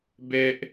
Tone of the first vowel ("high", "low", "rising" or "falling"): high